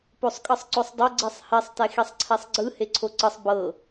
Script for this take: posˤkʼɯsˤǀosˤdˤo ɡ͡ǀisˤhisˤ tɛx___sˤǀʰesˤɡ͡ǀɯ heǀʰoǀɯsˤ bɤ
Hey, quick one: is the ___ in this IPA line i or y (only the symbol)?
i